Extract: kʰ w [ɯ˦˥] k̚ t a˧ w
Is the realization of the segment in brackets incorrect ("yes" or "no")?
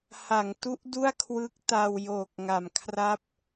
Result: no